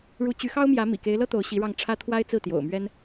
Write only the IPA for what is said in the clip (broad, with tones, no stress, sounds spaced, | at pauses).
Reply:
ɻ u˧˥ t͡ɕ y˧˥ x ɑ˥ ʊ̯ m j ä˧˥ m ḭ˨˩ k e˧˥ ɪ̯ l ɤ˥ t̪ o˧˥ ʊ̯ ɕ i˧˥ ɻ ɑ˥˩ ŋ ʈ͡ʂʰ ä˥ t̪ʰ w a˥ ɪ̯ t͡s ɹ̩˥˩ t̪ j o̰˨˩ ʊ̯ m ɥ ɛ˥ n